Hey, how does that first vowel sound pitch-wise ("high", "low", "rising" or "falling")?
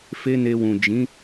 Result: high